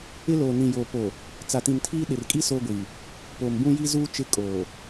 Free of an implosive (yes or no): no